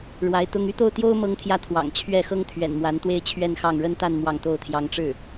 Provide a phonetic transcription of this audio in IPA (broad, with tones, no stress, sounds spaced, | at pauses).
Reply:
ɻ w a˧˥ ɪ̯ t̪ ʊ˥ ŋ y˥ t̪ o˥˩ ʊ̯ t̪ j o˥ ʊ̯ m ɤ˥ ŋ t̪ʰ j ä˥˩ t̪ʰ w ɑ̰˨˩ ŋ t͡ɕʰ ɥ ɛ˥˩ x ɤ˥ ŋ t̪ʰ ɥ ɛ̰˨˩ n m w a˧˥ n t̪ w e˥˧ ɪ̯ t͡ɕʰ ɥ ɛ˥˧ n x ɑ˥˩ ŋ ɻ ə˥ n t̪ a˥˧ n m w ɑ˥˩ ŋ t̪ o˥ ʊ̯ t̪ʰ j ɑ˥ ŋ ʈ͡ʂ ɻ̩˥˩